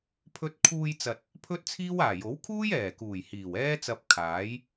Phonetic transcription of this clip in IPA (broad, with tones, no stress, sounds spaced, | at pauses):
pʰ ɵ˧ t̚ kʰ uː˧ j t͡s ɐ˨ t̚ | pʰ ɵ˥ t̚ t͡sʰ iː˥ w aː˨˩ j o˨˥ w kʰ uː˥ j ɛː˨˩ k uː˨˩ j h iː˨˩ w ɛː˥ t͡s ɐ˧ p̚ kʰ aː˨˥ j